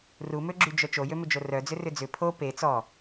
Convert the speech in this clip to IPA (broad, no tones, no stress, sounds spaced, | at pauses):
r u m ø ɡ͡ǁ y d͡ʒ œ t͡ʃ o j ø m ʏ d͡ʒ o r œ d͡z ʏ r ʏ d͡z ʏ pʰ o p e t͡s ɔ